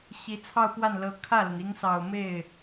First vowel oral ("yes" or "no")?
yes